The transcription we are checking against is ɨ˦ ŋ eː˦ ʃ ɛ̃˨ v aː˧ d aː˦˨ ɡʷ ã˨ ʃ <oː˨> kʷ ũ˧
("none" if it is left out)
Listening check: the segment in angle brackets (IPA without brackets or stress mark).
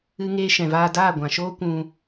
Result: oː˦